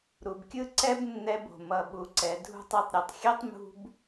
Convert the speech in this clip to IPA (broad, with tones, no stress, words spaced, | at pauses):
ɾu˨bkʲɯ˧ ǀɛ˦bnːɛ˧b o̤˨ mʌ˨ ɓu˨ǀɛ˨ dʱṳ˧tˤɯ˨tˤɾʲʌ˨tˤxʲɛ˦tˤ mṳ˦b